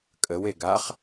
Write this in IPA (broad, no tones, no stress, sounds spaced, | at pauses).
kʼ ə w e ɡ a χ